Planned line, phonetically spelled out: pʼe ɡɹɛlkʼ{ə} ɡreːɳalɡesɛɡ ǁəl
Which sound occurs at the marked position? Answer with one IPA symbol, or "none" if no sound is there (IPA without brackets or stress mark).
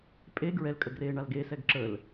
ə